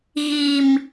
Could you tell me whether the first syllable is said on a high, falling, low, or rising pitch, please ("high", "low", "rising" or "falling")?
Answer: low